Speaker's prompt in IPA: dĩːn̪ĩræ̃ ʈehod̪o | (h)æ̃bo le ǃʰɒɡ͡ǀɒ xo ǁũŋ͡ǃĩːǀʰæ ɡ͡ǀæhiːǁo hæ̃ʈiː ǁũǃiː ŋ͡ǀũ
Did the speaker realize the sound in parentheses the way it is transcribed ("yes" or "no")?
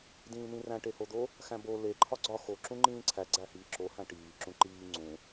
no